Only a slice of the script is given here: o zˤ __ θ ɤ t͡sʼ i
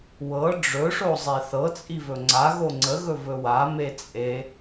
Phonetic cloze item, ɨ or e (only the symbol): e